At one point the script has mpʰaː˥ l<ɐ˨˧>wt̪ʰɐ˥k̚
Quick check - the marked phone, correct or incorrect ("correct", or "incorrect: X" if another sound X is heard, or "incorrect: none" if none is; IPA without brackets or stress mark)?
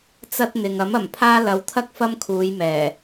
correct